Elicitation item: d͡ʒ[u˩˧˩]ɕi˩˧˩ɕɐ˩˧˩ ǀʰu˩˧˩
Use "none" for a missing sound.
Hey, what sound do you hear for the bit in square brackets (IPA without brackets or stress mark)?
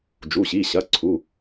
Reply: u˩˧˩